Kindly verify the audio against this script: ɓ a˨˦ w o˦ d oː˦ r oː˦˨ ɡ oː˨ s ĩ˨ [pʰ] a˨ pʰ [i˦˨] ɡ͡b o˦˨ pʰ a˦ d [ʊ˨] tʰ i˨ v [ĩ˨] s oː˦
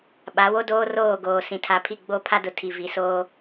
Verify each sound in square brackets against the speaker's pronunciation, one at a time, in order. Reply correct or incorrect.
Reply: incorrect: tʰ, correct, correct, incorrect: i˨

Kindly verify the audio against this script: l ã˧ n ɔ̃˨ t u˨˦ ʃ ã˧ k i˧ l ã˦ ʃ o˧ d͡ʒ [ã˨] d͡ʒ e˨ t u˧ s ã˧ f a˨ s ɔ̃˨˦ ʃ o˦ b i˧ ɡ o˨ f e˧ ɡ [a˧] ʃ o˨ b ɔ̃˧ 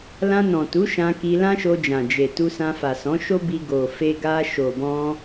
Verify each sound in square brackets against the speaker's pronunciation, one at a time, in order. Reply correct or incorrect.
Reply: correct, correct

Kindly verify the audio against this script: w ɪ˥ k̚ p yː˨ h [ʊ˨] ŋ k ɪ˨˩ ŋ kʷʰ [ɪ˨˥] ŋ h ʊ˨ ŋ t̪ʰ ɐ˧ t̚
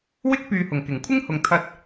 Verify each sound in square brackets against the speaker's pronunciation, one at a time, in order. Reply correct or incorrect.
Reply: incorrect: ʊ˨˩, incorrect: ɪ˥

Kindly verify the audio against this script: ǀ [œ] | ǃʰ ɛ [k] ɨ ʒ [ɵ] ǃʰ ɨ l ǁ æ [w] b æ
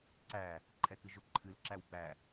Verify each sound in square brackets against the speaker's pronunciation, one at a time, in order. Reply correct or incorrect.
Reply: incorrect: æ, correct, incorrect: ʊ, correct

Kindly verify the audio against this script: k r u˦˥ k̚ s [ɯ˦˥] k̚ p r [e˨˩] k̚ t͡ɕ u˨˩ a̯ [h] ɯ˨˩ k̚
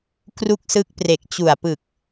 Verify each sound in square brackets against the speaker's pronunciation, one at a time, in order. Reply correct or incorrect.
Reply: correct, correct, incorrect: p

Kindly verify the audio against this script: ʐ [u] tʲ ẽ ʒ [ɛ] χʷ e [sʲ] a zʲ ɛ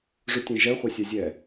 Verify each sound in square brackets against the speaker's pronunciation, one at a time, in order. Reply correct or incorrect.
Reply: correct, correct, correct

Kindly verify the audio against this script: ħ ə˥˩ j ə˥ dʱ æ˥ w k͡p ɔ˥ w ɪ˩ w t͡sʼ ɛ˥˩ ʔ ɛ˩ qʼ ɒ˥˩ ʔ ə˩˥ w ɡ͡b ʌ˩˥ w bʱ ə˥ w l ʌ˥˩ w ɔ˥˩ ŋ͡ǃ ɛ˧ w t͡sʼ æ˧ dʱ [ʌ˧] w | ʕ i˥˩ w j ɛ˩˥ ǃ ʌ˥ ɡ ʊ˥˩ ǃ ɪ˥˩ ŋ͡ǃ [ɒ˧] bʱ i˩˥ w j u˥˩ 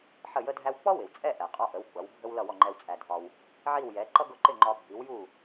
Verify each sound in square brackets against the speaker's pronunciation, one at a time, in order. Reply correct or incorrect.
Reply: incorrect: ɒ˧, correct

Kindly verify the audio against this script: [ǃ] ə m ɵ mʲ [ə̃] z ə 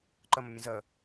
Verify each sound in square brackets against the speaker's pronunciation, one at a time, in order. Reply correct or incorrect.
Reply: correct, correct

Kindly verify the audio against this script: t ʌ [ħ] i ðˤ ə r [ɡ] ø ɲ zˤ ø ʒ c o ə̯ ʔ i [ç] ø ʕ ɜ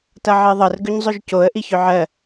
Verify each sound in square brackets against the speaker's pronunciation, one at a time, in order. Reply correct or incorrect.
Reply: incorrect: ʕ, correct, correct

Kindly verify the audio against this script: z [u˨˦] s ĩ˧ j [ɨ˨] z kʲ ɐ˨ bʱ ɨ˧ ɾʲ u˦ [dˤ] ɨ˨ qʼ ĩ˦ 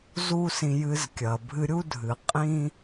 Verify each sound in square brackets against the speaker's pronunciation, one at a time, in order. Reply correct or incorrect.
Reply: incorrect: u˦, incorrect: ɨ˧, incorrect: dʱ

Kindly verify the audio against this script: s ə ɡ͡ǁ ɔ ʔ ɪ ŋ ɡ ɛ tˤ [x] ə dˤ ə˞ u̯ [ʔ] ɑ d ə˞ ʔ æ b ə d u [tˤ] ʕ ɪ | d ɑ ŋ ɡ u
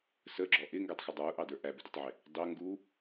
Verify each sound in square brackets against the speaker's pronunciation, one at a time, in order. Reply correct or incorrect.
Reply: correct, correct, correct

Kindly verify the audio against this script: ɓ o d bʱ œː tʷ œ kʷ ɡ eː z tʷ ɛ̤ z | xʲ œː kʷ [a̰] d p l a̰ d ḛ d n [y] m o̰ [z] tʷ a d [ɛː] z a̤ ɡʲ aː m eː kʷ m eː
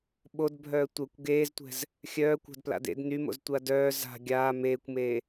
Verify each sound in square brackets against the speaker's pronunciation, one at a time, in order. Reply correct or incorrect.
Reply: incorrect: a̤, correct, correct, incorrect: œː

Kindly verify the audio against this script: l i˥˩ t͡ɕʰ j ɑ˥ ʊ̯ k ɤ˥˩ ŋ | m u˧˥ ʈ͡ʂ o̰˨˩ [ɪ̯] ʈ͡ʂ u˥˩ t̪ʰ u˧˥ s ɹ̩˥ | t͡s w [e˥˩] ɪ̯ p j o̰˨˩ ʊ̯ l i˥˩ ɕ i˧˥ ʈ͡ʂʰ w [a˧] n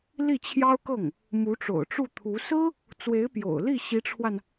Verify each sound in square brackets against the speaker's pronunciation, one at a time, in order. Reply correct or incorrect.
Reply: incorrect: ʊ̯, incorrect: e˧˥, correct

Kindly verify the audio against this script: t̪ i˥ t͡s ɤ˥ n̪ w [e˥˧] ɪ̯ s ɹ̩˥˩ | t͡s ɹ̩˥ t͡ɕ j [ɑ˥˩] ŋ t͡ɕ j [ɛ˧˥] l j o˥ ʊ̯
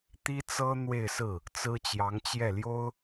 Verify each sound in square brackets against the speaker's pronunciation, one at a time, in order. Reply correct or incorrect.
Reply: correct, incorrect: ɑ˧˥, incorrect: ɛ˥˩

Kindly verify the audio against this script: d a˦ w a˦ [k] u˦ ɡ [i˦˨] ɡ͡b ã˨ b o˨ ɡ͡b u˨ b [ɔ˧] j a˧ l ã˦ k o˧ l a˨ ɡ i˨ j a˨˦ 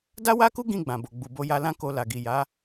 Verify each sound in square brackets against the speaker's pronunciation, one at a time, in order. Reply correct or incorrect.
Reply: correct, incorrect: ĩ˦˨, incorrect: o˧

